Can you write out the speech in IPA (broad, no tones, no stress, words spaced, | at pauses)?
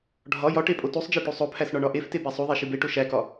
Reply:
ɖʱɒ jɒ ʈepʼotusˤd͡ʒe ʈusˤopʰæs ɳɒɳɒʔefte bæsˤuðˤe ʃibeʈo ʃækɒ